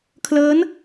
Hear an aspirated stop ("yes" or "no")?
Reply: yes